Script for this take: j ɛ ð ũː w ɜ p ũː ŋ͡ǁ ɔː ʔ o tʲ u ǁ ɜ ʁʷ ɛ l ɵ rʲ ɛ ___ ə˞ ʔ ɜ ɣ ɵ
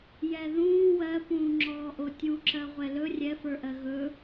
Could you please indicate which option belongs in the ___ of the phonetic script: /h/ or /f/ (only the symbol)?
f